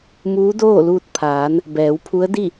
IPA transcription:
m uː˧˥ d oː˥˨ l uː˧ t̚ pʰ aː˩˧ n | b ɛː˩˧ w pʰ u˧˥ ə̯ d i˥˨

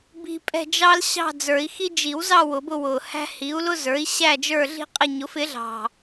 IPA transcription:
b i̤˧ pʼ ɛ̤˥˧ d͡ʒ ɑ˥ l ɕ ɑ̤˥˧ d͡z ə˞˨˩˦ i̯ x i˥ d͡ʒ i˨˩˦ w z ɑ˥˧ w ʊ˨˩˦ b ʊ˥˧ w ʊ˨˩ h æ̤˥ h i˩˥ u̯ l ʊ˥ z ə˞˩˥ i̯ ɕ æ˥˧ d͡ʒ ə˞˥˧ ɮ i̤˥ qʼ ɪ˥˧ ɲ ʊ˩˥ f ɪ˩˥ ɮ ɑ̤˨˩

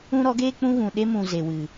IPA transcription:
ũ˦ ɾ ɔ˨˦ ɡ eː˦ k͡p ũ˦ ɣ ũ˨ ɗ e˦ m ũ˨ z e˨ w ɨ˨

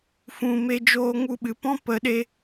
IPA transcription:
f ũ˨ m e˧ d͡ʒ oː˦ ŋ u˦ ɓ ɨ˨ p ɔ̃˦ p ə˨˦ ɗ e˧

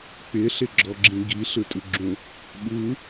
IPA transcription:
k͡p ɪ ɬ ɪ ɡ͡ǁ ɔ ɡ͡ǁ ĩ ɡ i ɬ ɯ tʼ ɯ ɡ͡ǁ ũ | ɓ ɯ

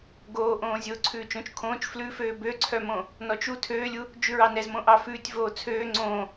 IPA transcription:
ɡ oː ʔ õː zʲ oː ǀʰ ʉː t͡ʃ õ t͡ʃ kʰ õː t͡ʃ f l ʉ f øː b ø ǀʰ œ m õ | n ɔ t͡ʃ u tʰ øː lʲ u | d͡ʒ ʉ ɹ ɑ n ɛ z m õ ʔ ɑ f ʉː tʲ v oː t͡sʰ øː ŋ͡ǀ õː

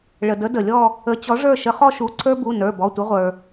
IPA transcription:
ɭ ə˩ d ə˨˦ d ə˩ lʲ ɔ˦˨ | ə˨˦ t͡ɕ ɔ˨˦ ʐ ə˞˦˨ ʃ ə˨˦ χ ɔ˦ ʃ u˩˧˩ ǀʰ ə˞˦ b u˩˧˩ n ə˞˩˧˩ b ɔ˩˧˩ tʷ ə˨˦ ʁʷ ə˞˩

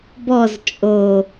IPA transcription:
b ɔ z t͡ʃʼ o

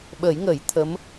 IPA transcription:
ɓ ə˨˩˦ j ŋ ə˨˩˦ j t̪ʰ ə˧˥ m

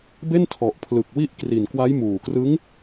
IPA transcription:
b e˥˩ n tʰ ɔ˨˩ ʔ pʰ l ɯ˨˩ k̚ w i˦˥ ʔ k r i˨˩ n k w a˦˥ j m uː˨˩ k r ɯ˦˥ ŋ

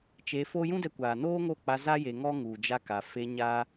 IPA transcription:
t͡ʃ e˧ f o˦ j ũ˦ d ɛ˧ kʷ aː˨ n oː˦ ŋ o˦˨ k͡p a˧ z a˦ j e˧ ŋ ɔ˦ ŋ u˨ d͡ʒ a˧ k a˨ f e˧ ɲ a˦

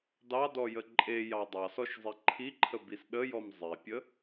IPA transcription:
d ɑ d ɔ j ə ǃʼ e j ɑ dˤ ɑ s ɔ ʃ zˤ i ǃʰ i ǃʰ ə b i s ɗ ə j ɔ m zˤ e pʲ ə

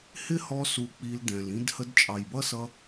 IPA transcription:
h ɪ˦ h ɔ˧ s u˧ k͡p i˧ l d ɛ̃˨ l ĩ˦ d h ə˧ d t͡ʃʼ ɑ˨ j b ʌ˦ s ʌ˧

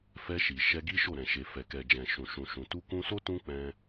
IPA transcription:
f ɛ˧ ʃ i˨ ʃ ɛ˧ ɡ i˦ ʃ o˦˨ ɾ ɛ̃˨ ʃ e˨ f ɛ˨ k ɛ˨ d͡ʒ ɛ̃˨ ʃ ũ˨ ʃ ũ˨ ʃ ũ˨ t u˧ k ũ˧ s o˦ t ũ˦ k͡p ɛ̃˧

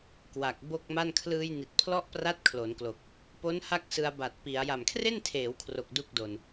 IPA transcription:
k w a˨˩ k̚ b o˥˩ k̚ m a˥˩ n kʰ l ɯː˧ j n i˨˩ t̚ pʰ l ɔ˦˥ ʔ p r a˦˥ t̚ kʰ l o˩˦ n k l o˨˩ k̚ | p o˦˥ n h a˥˩ k̚ s ɯ˧ a̯ b a˨˩ t̚ p i˩˦ a̯ j a˨˩ m kʰ r e˥˩ n tʰ eː˩˦ w kʰ r o˨˩ k̚ d u˥˩ k̚ d o˧ n

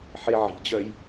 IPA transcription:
ħ e ʕ i̤ d͡ʑ œ j

